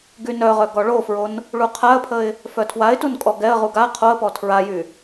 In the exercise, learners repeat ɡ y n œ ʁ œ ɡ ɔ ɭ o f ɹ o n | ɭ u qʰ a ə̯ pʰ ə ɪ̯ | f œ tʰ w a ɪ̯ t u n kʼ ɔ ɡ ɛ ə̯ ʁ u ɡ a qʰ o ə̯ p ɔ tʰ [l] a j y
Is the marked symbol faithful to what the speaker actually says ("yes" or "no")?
no